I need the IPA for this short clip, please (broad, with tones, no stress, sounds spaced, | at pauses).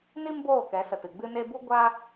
n i˦ m b oː˦˨ k ɛ˨˦ s ə˨ t ɨ˨ ɡ͡b ɨ˧ n e˧ b u˦ ɡʷ a˦